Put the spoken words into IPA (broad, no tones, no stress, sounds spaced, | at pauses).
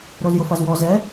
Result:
ɾ o z j ʊ f a z w ɔ z ɛ